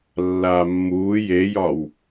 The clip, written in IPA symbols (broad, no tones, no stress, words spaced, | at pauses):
lːaːmːuː jejɒw